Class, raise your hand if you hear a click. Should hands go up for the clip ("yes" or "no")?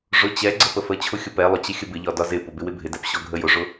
yes